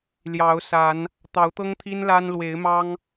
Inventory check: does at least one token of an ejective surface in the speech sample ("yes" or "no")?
no